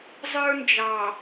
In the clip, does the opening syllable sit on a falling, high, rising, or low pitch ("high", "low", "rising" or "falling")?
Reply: high